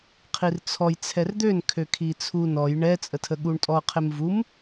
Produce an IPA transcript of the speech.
qʰ i r t͡sʰ ɔ j t͡sʰ ɛ r d̪ ø n kʰ ø kʰ i t͡sʰ u n ɔ j ɳ ɛ t͡sʼ ə tʰ ə ɠ u ɳ tʼ ɔ qʰ e m v u m

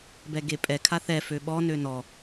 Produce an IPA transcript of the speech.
b ɛ ɡ e pʼ ɛ kʰ a θ ɛ f ø ɓ ɔ n ø n ɔ

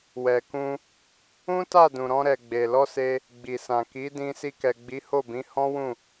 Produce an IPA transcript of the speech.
w ɛ˨ k ũ˧ | ũ˦ t a˦˨ d ũ˨ ɾ ɔ̃˧ ɾ ɛ˨ ɡ͡b e˨ l ɔ˧ s e˧ | ɡ͡b i˨ s ã˨ k i˨˦ d ĩ˧ s i˧ k ɛ˨ ɡ͡b i˨˦ h o˦˨ b ĩ˨˦ h ɔ̃˦ w ũ˦˨

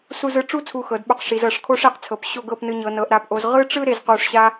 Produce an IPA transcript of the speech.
s u˧ z ɯ˧ ʈ͡ʂ u˥˧ t͡sʰ u˧ x ɤ˩˧ d ɓ o˧ q ʂ i˩˧ z ɤ˧˩ ʂ kʰ o˥ ʂ e˧˩ q t͡sʰ ɤ˩˧ p ɕ o˥˧ ɡ ɤ˥˧ p n ɯ˧ ɲ ɤ˩˧ n ɤ˩˧ ʔ ɾ a˩˧ p ʔ o˩˧ z ʁ ɯ˥ ʈ͡ʂ ɯ˥ ɾ e˧ z q u˧˩ ʂ ɕ a˥

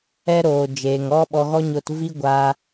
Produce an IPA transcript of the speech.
ɛ˦ ɾ oː˨ d͡ʒ eː˨ ŋ ɔ˦ ɓ ɔ˧ ɣ ɔ˦ ɲ o˦ t v i˦ ɡʷ a˧

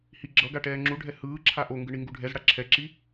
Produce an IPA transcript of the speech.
h i ɡ͡ǁ ʌ ɡ a ʈ ɛː ŋ͡ǁ u ɖʱ ɛ h ɯː ǁʰ a ʔ o ŋ ɡ ɯ ɳ i ŋ ɡ u ɖʱ ɛ z ɽ a ǁʰ ɛ ǁ i

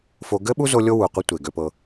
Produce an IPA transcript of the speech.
f o˧ ɡ ɘ˦ ɓ u˦ z o˧ lʲ o˦ w u˨ qʷ e˦ tʷ e˨ ɡ ø˧ p ɤ˧

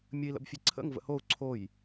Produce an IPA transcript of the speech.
mʲ ə i̯ l ə̰ b fʲ e ǀʰ ə̰ ŋ v ə̰ h o u̯ ǀʰ o j

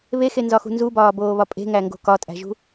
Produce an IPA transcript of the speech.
β e x e n z ɒ x ṳ n z u b ɒː b oː β ɒ pʼ e̤ ŋ æ ŋ ɡ o̤ k ɒ tʼ æ̤ ʒ ṳ

